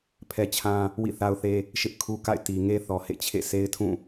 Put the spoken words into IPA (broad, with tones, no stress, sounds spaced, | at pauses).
pʰ ɛ˦ t͡ɕʰ ã˦ | w ḭ˦˨ θ a˦ ʊ̯ θ e˦ | ʃ ɪ˦ ʔ kʰ u˦ k a̰˦˨ ɪ̯ t i˨ ŋ e˦ θ ɔ˨ h ḛ˦˨ t͡ɕʰ ḛ˦˨ s e˦ ɪ̯ tʰ ũ˦˨